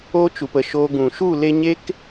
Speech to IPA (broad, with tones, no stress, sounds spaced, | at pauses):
oː˦ t͡ʃ u˨ p ə˨ ʃ oː˧ ɡ ũ˨ ʃ u˦˨ l e˧ ɲ e˦ k